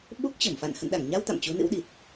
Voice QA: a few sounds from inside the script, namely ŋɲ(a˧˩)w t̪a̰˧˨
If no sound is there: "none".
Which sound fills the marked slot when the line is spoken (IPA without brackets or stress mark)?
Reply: a˧